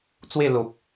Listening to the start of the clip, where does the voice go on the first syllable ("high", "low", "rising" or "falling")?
falling